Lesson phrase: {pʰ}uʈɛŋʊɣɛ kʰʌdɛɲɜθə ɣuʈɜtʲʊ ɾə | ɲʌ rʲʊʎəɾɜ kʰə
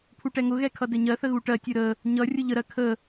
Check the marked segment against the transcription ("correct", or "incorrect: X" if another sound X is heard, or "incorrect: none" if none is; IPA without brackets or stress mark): correct